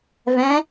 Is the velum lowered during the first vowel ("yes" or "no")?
yes